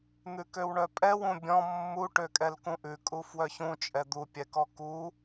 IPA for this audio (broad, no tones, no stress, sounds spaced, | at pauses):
n̪ ʉ k ø w ɳ œ pʼ ɛ w ũ bʲ ɔ̃ mː u ʈ ø kʼ ɛ l k ũ ʔ ʉ kʼ u f w œ ç ũ t͡ʃʼ ɛ d̪ u pʲ ɛ k ɔ k u